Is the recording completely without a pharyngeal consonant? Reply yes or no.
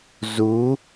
yes